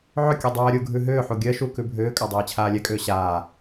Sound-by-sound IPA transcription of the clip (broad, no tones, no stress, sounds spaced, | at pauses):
ʕ ʏ kʲ u dˤ ɜː ɾʲ u ɡʱ ʉ ɦ ʏː ħ u ɡʲ ɜ ʃ u k ʉ bʱ ʏː kʼ a dˤ ɛː t͡ɕʰ aː lʲ ɛ kʼ ʏː ɕ aː